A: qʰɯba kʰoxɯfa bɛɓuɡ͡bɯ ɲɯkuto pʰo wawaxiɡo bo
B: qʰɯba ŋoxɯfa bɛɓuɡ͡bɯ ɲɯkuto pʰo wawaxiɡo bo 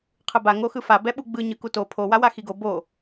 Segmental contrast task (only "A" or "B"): B